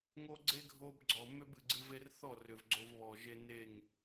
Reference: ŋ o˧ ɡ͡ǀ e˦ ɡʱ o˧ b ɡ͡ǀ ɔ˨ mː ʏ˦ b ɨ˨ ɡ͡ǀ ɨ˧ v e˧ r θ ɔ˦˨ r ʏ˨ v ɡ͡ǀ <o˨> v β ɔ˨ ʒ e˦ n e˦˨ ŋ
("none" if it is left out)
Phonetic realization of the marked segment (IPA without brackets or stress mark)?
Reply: o˧